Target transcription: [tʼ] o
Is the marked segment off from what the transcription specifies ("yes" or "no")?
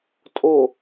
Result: no